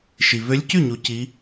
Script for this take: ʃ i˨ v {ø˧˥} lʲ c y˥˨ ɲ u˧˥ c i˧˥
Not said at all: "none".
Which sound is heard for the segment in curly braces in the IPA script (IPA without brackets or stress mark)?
ø˧˥